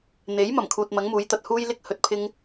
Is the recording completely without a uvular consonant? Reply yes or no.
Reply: yes